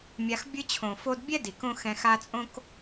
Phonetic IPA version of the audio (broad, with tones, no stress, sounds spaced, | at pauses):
mʲ a˧ x bʲ ɯ˧ t͡ɕʰ õ˨ f o˧ d bʲ ɛ˦ d i˨ k õ˦ x ɛ̃˧ x a˧ t͡sʼ õ˦ k